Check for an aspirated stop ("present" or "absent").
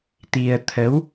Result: present